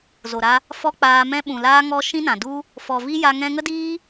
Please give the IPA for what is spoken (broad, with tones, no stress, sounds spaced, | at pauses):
z o˨ ɾ a˧ | f ɔ˧ k͡p aː˧ m ɛ̃˦ ɓ ũ˨ l aː˧ ŋ ɔ˧ ʃ ĩ˦ n ã˨ d u˦ | f ɔ˨ v i˦ j a˧ ŋ ɛ̃˧ ŋ ə˦ d iː˦